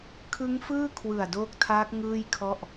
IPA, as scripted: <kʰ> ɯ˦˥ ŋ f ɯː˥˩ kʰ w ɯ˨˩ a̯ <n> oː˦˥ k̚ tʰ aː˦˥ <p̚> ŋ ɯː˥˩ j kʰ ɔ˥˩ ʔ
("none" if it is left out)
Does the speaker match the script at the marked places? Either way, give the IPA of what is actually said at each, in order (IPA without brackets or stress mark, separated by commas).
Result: kʰ, d, k̚